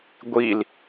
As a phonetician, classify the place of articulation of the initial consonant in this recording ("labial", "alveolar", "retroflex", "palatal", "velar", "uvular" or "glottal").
velar